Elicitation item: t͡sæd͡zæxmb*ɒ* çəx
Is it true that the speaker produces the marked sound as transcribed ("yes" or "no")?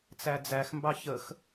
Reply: no